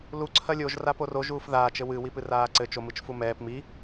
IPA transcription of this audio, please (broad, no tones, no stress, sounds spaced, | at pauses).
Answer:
l u ǀʰ ɐ lʲ o ʒ r a p o r o ʒ uː f ð aː t͡ʃ ɘ w ɨ w i p ɨ r aː ǀ ɘ t͡ʃ o m ɨ t͡ʃ f u m ɛː p m i